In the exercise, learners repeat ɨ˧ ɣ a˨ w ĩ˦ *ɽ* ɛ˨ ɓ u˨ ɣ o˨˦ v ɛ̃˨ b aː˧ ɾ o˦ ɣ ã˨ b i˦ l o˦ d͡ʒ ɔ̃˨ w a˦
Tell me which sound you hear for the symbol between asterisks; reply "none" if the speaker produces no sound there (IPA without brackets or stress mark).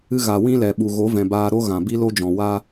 l